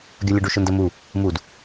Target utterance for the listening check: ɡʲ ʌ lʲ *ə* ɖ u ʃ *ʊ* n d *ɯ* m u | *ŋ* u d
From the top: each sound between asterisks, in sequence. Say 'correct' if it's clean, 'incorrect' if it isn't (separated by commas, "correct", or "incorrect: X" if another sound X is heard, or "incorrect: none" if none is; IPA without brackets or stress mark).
correct, correct, incorrect: ə, incorrect: m